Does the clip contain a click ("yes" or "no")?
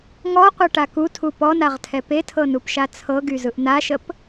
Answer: no